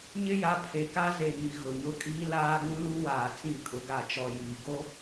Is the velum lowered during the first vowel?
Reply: no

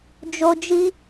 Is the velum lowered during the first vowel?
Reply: no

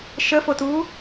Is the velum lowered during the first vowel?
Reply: no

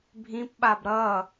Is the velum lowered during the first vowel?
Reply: yes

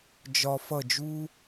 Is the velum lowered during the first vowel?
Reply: no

